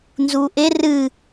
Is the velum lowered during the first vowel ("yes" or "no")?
no